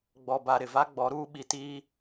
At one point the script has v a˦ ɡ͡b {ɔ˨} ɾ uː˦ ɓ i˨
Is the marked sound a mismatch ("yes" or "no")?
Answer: yes